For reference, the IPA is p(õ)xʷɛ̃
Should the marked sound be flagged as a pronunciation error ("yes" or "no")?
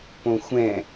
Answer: no